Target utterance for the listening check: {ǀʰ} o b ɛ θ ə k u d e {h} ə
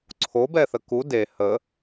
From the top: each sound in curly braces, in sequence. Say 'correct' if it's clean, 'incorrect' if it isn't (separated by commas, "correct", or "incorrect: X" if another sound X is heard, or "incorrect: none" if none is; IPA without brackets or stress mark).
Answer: correct, correct